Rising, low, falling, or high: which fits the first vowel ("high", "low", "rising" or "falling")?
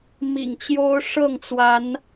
low